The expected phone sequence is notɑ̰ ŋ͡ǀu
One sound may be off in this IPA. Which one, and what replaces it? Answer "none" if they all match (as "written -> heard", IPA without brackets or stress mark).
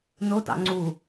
none